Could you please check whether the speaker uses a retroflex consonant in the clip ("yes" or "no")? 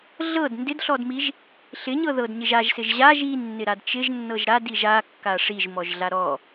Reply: yes